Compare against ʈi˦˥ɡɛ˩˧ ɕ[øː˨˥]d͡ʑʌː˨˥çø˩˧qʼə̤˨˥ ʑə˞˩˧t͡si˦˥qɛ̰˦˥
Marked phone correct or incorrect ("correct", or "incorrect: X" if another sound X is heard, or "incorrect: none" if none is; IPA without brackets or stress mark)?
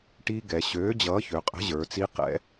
correct